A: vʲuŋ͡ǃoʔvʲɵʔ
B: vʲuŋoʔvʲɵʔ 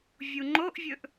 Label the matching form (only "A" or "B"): A